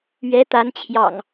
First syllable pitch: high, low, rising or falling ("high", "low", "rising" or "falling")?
rising